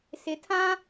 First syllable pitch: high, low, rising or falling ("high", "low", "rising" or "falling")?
rising